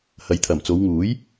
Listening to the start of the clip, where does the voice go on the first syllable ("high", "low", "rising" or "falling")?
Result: rising